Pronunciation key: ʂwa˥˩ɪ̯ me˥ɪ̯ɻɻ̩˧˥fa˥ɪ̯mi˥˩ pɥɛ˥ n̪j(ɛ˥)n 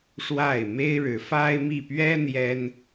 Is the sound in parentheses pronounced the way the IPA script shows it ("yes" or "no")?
yes